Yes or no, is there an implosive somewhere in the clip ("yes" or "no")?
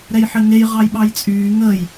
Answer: yes